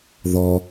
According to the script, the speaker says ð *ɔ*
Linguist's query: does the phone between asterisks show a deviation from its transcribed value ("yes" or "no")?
no